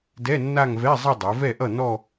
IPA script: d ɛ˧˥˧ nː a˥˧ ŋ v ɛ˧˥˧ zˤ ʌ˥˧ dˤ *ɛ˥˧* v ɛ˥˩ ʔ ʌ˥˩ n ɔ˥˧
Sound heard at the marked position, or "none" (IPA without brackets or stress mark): ɛ˩˧